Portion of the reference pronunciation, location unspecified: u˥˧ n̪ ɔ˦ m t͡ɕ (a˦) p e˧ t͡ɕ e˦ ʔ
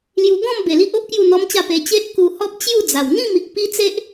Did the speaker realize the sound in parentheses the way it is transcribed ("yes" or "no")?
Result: no